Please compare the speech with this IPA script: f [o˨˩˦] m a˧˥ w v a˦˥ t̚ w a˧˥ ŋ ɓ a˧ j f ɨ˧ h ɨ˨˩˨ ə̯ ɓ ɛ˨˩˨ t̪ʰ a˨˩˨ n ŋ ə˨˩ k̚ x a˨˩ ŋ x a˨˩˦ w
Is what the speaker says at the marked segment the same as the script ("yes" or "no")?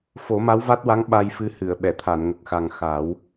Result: yes